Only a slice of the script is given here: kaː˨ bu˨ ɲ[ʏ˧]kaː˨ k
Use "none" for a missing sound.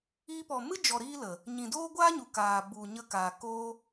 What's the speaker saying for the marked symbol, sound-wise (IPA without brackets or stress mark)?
ə˧